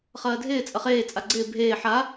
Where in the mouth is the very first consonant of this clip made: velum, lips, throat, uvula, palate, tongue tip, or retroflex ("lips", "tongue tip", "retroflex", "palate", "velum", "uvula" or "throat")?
uvula